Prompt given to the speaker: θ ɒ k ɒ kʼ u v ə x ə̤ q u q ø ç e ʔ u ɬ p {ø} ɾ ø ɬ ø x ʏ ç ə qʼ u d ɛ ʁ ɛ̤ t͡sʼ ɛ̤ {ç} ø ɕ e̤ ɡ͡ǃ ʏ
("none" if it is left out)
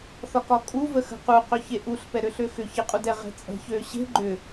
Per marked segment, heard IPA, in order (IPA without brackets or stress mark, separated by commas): ɛ, ç